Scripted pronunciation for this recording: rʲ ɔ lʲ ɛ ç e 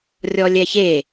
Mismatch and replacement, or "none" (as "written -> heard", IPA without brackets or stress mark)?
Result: none